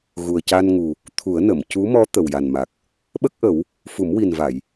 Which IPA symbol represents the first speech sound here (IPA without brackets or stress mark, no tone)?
ɣ